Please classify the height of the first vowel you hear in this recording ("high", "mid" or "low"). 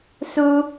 high